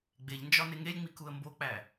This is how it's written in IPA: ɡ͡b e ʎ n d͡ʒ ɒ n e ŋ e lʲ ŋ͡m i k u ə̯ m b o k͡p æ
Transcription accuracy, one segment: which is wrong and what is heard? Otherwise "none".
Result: none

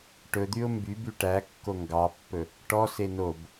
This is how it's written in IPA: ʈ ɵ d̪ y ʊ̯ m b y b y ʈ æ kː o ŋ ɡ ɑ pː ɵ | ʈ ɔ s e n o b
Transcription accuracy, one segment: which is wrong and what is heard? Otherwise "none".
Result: none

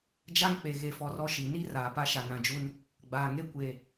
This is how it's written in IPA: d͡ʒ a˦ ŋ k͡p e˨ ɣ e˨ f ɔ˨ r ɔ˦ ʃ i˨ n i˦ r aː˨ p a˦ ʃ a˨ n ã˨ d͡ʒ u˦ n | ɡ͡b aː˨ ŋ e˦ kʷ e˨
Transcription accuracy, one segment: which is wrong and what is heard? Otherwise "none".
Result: none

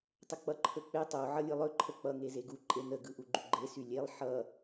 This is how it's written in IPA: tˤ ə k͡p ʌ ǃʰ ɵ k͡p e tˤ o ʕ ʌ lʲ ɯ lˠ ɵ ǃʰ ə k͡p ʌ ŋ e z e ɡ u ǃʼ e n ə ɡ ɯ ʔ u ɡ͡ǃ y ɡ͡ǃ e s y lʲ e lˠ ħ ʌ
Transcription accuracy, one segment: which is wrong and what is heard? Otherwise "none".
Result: none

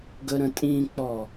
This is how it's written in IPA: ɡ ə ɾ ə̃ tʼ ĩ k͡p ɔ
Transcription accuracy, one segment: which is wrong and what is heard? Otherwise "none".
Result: none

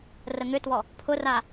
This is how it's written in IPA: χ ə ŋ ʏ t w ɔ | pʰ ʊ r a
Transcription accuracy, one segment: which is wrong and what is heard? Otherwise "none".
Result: χ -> r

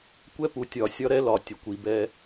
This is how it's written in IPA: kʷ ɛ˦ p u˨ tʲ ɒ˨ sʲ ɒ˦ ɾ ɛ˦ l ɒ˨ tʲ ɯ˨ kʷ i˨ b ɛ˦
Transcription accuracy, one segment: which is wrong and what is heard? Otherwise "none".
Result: ɯ˨ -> ə˨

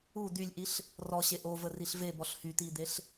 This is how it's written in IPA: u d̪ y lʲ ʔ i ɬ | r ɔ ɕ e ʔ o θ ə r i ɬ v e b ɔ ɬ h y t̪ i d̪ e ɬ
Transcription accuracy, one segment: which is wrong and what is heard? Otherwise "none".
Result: θ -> v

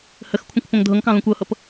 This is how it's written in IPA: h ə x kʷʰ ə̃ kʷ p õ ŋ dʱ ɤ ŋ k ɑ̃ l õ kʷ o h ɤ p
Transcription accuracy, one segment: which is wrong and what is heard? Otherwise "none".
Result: o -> ɤ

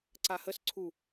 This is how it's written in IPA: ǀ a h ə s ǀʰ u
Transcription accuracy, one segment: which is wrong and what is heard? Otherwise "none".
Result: none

